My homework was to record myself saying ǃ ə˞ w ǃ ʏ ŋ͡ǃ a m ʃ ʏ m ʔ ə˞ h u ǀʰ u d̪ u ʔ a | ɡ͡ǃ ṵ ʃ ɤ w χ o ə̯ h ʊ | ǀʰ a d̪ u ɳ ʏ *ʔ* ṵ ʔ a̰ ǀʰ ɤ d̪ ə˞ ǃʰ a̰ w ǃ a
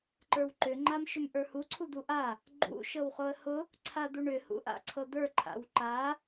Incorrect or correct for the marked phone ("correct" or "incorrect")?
incorrect